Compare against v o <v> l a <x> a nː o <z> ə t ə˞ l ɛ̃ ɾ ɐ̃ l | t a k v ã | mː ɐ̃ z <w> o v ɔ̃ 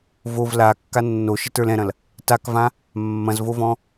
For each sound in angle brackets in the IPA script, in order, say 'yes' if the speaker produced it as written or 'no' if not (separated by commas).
yes, no, no, no